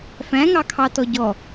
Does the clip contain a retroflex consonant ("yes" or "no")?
no